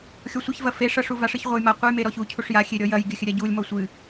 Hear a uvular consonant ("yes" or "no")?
yes